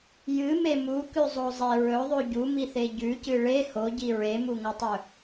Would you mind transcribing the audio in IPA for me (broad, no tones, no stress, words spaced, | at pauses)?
jɨme mukʉzˤozˤe ɹɵðˤʉ ɟumiθe ɟʉcɨ ɭe hoɟi ɹemuŋɐtˤɵ